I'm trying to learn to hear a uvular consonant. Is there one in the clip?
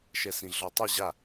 no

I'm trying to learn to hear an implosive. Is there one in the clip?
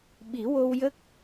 yes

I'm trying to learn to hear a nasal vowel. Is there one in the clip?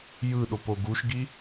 no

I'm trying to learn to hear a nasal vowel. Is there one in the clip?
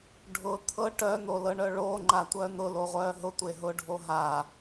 no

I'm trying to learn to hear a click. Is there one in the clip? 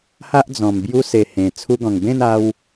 no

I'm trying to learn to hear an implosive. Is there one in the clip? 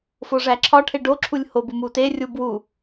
no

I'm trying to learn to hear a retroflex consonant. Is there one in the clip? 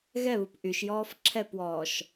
no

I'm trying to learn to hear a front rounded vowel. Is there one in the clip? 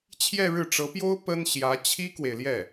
no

